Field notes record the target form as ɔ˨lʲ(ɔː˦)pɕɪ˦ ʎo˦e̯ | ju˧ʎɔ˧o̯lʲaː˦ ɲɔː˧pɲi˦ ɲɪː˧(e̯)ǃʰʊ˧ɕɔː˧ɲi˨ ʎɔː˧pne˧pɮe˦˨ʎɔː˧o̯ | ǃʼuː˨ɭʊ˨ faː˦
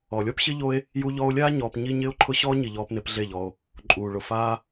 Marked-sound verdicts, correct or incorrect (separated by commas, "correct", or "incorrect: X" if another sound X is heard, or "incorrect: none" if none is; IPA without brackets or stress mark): incorrect: ɔ˦, incorrect: o̯